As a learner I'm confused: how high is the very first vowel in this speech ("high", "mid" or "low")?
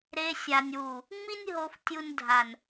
mid